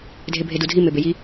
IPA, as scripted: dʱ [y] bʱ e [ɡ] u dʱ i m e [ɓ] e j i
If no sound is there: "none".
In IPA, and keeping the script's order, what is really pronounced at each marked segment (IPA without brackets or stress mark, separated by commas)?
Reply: e, d, b